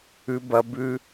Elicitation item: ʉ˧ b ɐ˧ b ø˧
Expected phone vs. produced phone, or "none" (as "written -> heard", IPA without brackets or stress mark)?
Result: ø˧ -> ʉ˧